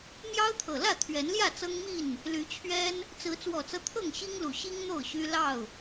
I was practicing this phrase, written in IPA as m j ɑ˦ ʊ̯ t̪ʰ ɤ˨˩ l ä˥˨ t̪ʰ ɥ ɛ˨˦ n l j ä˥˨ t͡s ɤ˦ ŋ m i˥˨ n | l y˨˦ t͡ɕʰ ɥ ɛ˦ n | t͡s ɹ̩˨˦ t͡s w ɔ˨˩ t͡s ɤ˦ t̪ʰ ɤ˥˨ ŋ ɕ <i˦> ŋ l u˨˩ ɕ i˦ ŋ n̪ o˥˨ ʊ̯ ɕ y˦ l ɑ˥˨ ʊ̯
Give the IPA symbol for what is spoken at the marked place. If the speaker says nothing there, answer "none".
i˦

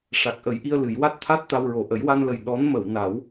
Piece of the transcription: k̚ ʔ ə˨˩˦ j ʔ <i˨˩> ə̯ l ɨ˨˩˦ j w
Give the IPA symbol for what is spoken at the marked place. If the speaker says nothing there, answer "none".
i˧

